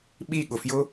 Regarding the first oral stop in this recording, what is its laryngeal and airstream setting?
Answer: implosive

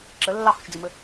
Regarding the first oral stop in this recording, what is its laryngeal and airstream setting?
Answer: click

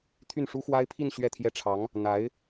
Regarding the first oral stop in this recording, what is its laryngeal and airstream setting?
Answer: aspirated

